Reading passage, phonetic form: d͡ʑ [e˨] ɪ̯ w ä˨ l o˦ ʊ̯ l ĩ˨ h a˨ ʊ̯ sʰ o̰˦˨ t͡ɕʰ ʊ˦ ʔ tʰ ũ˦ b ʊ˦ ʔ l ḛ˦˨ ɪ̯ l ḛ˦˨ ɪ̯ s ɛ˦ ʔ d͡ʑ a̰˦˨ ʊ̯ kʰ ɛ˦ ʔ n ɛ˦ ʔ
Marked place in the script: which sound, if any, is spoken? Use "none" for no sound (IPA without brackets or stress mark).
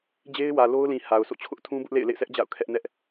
e˦